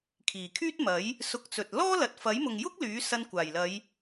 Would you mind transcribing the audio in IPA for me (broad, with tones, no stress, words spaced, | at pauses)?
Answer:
kʰiː˨˩kʰyː˥t̚mɐ˨˥j | sʊ˧k̚t͡sɵ˨t̚ lɔː˥ lɐ˨t̚fɐ˨˥jmʊ˨ŋjʊ˥k̚ lyː˨˥sɐ˧nkʷaː˨˩jlɐ˨˧j